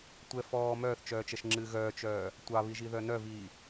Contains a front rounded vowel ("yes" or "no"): yes